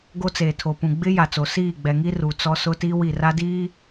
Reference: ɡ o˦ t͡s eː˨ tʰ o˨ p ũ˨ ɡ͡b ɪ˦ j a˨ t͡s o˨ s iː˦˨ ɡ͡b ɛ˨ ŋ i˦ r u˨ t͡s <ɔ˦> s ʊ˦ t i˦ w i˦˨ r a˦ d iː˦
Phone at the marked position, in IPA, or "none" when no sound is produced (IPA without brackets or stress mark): ɔ˦